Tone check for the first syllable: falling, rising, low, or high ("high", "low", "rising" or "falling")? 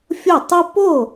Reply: falling